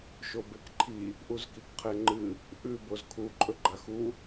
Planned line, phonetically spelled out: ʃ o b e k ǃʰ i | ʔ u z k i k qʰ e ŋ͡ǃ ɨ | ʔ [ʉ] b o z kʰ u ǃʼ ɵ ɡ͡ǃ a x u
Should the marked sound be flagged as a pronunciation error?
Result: no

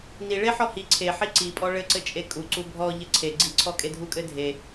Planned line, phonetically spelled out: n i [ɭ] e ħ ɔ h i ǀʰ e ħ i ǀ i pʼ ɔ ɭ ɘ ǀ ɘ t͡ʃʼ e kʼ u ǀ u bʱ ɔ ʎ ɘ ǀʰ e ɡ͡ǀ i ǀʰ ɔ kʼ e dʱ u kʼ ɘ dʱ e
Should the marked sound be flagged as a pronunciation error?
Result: no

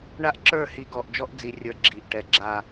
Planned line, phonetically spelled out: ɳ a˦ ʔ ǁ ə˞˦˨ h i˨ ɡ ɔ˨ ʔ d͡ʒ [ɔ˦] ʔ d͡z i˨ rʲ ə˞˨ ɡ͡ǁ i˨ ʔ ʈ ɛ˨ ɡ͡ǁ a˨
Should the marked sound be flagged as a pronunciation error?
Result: no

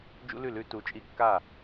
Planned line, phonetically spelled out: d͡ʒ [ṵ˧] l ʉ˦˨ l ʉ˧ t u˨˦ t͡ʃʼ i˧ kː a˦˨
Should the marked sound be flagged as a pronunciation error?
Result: yes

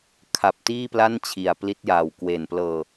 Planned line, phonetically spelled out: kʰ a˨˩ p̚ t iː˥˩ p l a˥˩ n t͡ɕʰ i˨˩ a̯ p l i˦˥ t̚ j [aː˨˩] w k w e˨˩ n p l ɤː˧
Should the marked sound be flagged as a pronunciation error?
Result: no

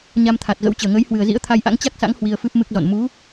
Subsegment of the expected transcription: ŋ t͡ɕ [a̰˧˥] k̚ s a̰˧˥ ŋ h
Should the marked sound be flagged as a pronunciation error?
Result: yes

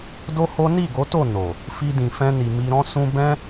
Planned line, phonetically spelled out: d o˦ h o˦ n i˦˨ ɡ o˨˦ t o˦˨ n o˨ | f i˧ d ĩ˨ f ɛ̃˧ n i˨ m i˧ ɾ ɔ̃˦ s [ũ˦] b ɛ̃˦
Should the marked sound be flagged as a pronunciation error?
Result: no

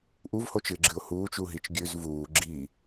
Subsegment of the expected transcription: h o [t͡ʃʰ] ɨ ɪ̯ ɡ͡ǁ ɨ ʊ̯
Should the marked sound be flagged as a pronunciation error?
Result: yes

